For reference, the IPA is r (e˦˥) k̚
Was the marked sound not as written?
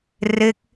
no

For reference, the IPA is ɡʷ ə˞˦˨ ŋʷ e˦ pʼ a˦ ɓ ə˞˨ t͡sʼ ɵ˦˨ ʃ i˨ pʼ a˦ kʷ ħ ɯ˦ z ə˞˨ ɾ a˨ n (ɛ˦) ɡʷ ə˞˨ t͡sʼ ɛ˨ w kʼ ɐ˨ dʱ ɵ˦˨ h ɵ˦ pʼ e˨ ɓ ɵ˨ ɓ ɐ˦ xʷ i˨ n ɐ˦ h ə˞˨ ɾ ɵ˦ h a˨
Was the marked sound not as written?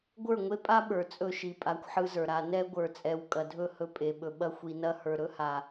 no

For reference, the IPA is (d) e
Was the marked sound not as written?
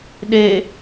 yes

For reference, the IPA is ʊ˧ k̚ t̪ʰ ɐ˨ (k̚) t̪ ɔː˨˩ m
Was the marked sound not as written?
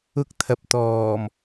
yes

